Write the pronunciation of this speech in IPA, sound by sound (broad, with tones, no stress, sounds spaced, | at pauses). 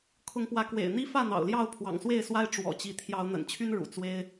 kʰ ʊ˨˦ ŋ p w ä˨˦ k w ḛ˨˩ ɪ̯ n̪ i˦ f ä˥˨ n̪ ɑ̰˨˩ ʊ̯ l j ɑ˥˨ ʊ̯ pʰ w ɑ̰˨˩ ŋ s w e˥˨ ɪ̯ s w a˦ ɪ̯ ʈ͡ʂ w ɔ̰˨˩ t͡ɕ i˨˦ t̪ʰ j ɑ˨˦ ʊ̯ n̪ ə̰˨˩ n t͡ɕʰ y˦ n ɻ ṵ˨˩ t͡s w e˦ ɪ̯